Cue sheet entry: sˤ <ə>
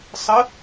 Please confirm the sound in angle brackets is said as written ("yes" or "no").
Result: yes